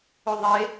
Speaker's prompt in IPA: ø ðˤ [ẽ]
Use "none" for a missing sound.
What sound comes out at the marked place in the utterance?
e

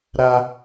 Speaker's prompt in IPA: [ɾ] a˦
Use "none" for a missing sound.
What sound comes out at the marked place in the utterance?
ɾ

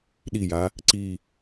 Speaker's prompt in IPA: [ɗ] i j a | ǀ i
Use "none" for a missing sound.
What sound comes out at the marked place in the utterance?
ɗ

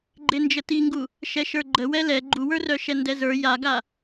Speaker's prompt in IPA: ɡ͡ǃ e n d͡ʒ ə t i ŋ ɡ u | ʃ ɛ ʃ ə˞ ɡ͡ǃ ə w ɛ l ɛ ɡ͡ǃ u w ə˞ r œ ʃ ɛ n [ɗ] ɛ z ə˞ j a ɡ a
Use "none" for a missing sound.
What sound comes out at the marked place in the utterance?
d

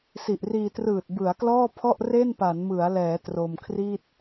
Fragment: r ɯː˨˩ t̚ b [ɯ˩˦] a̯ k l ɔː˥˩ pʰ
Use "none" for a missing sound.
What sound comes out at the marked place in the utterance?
ɯ˩˦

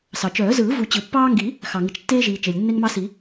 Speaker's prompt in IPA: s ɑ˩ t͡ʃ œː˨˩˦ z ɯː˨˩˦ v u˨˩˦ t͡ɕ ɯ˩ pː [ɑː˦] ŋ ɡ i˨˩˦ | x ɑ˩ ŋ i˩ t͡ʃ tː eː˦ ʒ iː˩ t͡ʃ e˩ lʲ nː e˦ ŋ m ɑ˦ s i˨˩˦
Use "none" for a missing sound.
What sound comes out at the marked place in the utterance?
ɑː˦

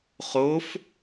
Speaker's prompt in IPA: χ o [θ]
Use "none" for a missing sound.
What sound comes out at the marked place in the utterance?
f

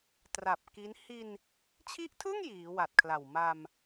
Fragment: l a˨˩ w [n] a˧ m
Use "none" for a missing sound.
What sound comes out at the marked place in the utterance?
m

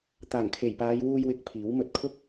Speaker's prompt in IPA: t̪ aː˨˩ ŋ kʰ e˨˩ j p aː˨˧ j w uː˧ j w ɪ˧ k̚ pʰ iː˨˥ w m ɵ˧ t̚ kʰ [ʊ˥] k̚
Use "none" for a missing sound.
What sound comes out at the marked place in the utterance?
ʊ˥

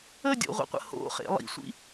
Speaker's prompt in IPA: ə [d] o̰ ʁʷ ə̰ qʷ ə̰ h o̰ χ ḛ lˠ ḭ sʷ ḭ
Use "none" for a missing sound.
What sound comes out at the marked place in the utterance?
dʲ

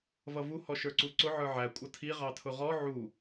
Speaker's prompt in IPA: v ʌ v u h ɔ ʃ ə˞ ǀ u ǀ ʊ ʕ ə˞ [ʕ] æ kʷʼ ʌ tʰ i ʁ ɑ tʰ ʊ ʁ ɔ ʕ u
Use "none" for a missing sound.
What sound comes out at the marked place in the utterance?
ʕ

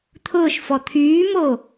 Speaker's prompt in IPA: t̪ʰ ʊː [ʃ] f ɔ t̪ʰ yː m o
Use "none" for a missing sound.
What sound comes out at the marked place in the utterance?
ʃ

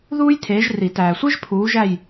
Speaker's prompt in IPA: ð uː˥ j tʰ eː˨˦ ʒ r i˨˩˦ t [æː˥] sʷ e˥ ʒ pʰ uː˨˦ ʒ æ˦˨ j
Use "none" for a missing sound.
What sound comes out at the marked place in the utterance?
æː˨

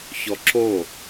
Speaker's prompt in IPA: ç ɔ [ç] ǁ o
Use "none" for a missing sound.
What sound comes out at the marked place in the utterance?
none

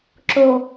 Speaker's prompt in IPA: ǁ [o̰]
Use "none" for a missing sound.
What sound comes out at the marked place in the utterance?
o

